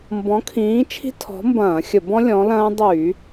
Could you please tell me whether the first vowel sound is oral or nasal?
nasal